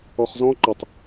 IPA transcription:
ɔχzɔ̃ ǃətˤ

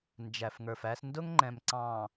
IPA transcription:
nd͡ʒæ˨fŋə˞˨fæ˦s ndʊ˦ŋŋ͡ǃɛ̃˨m ǀɑ̃˨

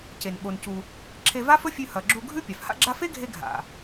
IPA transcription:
ce˩n ɓo˩ncu˩ | ǁʰe˧va˥fɵ˥fʲʉ˧ hɐ˩ɡ͡ǁu˧ɡʱʉ˥ pʲa˩fha̰˥ɡ͡ǁa˥ fe˥ɡʱe˧ ɡʱa̰˩

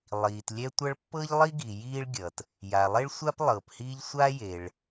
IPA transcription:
lˠiː˩tlʲɛ˥tʷʌ˥ɭ pːɤ˥ʎlˠi˥ɡi˩ jiː˥ɭɡʲʌ˩t | ja˩lˠe˥ɭ sʷa˥p lˠɤː˩phiː˥ʎ sʷa˥jeː˩ɭ

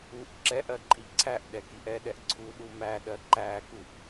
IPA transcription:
uʔ ǁɛʔɜǃʼi ǀʰæʔɗɛkiʔ ɛɗɛʔ ǀʰuɗu mæɗɜ ǃækuʔ

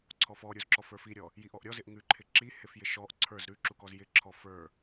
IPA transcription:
ǀʰɔfɔɾʲuzǁɔf ə˞fiɾʲɔ | jiʔɔʔɾʲɔzɪʔ ŋʉǃʰɪ ǁihɪfjɪ ʃɔʔ ǀʰə˞z ɾʉǁukɔz jɪǁʰɔ fə˞

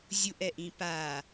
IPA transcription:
zʲuʔɛʔĩ pa

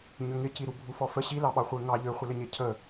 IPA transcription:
ɲʏŋɪciɾu bʱufɔfə ɕilɑɓɑ χʷeŋɑ ʎøχʷɪlɪɲe cʰə

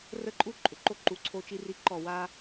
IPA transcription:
rə˦˨ǃʼu˦ ǃʼʏ˨ǃo˦ ǃu˨ǀʰo˦ t͡ʃi˦ri˦ǃɔ˦˨ wa˦

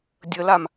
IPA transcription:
dʲəlam

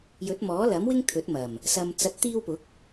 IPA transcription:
jɵ˨˥t̚mɔː˨˥lɐ˨˥mwɪ˥ŋ t̪ʰɵ˨˥t̚mɐ˨˩m | sɐ˨m t͡sɐ˨t̚t̪iː˧wpʊ˨˥k̚

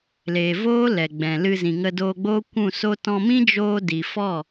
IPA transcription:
leː˨voː˦ lɛ˨ɡ͡bɛ̃˨lɨ˧ zĩ˨ŋə˧doː˧ ɡ͡bo˦kʷũ˦˨so˦ tɔ̃˧mĩ˦d͡ʒoː˧ di˨fɔ˦˨

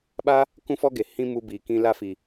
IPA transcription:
ɓa˦ | kũ˦fɔ˦ɡe˨ hĩ˦mu˧ biː˨kĩ˧ la˧ fi˨

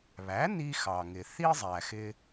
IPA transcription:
βæ˩˥ni˧ xɑ˩ŋɪ˩ θi˥zˤæ˩xɪ˧

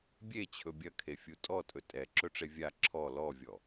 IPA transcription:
bʲet͡ɕʰɵ bʲɐkʰefʲu tʼɔtʼɵ tʼɛǁɵʈ͡ʂe vʲa ǁʰɔ lɔvʲɔ

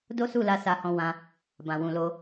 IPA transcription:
do˦su˦˨la˧ sa˧hɔ̃˧wã˧ | bã˨wũ˨lo˧

